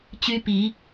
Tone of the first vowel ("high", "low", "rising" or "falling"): high